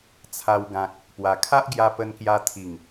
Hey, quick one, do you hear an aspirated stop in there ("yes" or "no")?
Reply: yes